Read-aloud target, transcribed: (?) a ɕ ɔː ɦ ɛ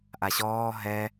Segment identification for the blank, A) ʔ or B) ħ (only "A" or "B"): A